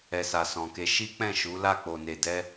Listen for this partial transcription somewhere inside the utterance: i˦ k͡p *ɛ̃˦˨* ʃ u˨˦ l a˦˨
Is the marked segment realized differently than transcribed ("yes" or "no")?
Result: no